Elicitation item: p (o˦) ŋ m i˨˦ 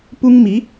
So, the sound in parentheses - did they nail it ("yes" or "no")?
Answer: no